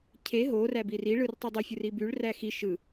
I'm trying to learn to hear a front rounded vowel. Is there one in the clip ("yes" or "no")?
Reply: yes